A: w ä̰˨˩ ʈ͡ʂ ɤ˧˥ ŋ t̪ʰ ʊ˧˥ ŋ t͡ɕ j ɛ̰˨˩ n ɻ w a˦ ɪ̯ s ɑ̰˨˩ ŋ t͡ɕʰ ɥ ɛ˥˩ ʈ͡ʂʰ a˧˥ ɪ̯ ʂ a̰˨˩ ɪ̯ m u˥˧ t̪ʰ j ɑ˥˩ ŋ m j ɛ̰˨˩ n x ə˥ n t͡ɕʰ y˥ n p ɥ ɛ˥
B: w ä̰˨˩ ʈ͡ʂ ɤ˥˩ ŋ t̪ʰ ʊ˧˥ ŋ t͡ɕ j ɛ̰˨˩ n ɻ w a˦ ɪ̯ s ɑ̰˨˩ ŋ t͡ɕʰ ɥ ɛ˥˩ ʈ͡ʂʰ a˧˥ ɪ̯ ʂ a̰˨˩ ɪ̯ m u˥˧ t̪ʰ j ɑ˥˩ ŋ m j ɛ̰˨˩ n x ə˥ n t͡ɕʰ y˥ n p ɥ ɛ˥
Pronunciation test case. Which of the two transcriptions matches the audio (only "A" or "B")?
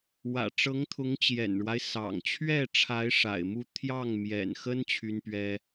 A